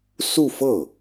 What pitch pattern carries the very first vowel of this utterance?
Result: falling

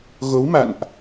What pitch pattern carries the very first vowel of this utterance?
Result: rising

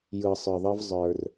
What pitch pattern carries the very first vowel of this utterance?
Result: low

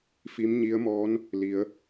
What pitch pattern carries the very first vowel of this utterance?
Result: rising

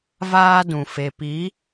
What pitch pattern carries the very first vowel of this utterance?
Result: high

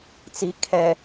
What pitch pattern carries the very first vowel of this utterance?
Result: low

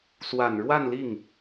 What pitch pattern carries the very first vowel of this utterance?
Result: low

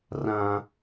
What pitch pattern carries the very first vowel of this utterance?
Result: high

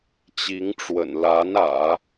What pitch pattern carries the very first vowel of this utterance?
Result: rising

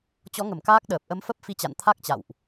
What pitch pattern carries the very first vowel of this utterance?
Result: rising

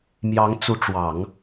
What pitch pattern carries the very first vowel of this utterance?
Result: rising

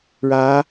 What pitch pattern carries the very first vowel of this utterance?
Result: rising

